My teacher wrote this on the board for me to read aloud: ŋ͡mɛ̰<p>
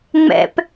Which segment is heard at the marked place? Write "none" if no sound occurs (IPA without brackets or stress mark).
p